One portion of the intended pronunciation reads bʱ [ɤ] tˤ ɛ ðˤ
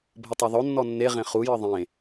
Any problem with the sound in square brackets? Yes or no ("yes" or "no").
no